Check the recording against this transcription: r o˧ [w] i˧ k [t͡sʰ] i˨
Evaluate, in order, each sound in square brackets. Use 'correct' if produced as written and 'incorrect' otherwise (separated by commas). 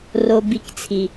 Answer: incorrect, correct